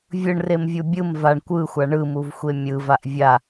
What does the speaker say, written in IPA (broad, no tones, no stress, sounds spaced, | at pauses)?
vʲ ɯ ɳ r e m vʲ u bʲ ɯ m v a ɳ kʷ ɯ xʷ a ɳ ɯ m u v xʷ e mʲ ɯ v a ʔ vʲ a